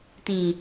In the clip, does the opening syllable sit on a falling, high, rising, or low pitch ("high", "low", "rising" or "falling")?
low